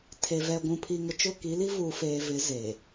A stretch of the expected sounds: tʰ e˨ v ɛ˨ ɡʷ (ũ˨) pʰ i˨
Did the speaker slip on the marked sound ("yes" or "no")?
no